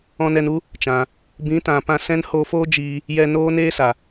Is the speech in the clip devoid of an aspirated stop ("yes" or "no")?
yes